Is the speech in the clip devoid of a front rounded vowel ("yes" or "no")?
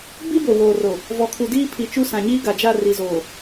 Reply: yes